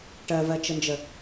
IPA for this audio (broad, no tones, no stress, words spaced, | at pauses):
ʈɜvɜt͡ʃənd͡ʒə